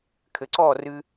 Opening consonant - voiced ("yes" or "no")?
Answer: no